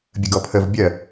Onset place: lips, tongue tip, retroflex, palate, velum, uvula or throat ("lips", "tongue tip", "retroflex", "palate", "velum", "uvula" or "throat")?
lips